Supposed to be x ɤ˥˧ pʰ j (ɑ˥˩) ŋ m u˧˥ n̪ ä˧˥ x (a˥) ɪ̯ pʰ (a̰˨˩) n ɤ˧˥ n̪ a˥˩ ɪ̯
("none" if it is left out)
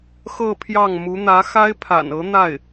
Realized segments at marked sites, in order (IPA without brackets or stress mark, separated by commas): ɑ˥˩, a˥, a̰˨˩